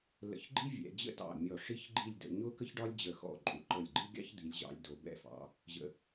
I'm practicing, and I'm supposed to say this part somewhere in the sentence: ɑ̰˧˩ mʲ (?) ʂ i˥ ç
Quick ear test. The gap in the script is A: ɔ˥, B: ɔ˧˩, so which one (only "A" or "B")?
B